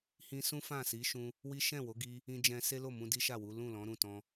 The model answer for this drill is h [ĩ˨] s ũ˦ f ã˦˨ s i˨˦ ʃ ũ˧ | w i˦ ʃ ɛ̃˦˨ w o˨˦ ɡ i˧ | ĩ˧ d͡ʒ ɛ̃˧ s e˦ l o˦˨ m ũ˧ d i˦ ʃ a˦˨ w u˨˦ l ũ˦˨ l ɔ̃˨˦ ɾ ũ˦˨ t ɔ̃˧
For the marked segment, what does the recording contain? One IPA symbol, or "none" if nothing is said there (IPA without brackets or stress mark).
ĩ˧